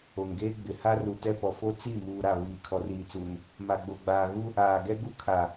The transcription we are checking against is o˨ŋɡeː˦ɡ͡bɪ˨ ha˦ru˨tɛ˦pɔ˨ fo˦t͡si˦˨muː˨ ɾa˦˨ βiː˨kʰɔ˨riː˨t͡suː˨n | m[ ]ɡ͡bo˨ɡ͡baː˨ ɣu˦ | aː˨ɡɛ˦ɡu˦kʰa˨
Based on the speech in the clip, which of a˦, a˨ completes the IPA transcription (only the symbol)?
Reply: a˨